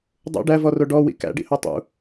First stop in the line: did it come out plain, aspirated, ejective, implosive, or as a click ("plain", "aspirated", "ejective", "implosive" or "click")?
plain